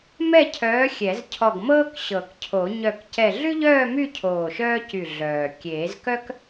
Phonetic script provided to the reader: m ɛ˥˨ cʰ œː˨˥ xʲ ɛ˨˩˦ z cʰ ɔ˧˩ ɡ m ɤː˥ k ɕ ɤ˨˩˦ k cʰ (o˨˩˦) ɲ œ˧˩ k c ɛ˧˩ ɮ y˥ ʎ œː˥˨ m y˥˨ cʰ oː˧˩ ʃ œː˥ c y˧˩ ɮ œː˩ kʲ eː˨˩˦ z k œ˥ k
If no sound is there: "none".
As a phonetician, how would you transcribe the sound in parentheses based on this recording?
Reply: o˨˩˦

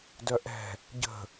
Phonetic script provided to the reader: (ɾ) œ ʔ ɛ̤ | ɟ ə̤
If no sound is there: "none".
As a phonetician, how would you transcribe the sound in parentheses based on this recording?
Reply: d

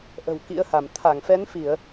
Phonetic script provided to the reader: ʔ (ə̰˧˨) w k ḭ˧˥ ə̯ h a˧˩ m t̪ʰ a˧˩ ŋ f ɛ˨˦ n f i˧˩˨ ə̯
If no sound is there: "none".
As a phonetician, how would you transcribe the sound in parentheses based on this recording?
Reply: ə̤˨˩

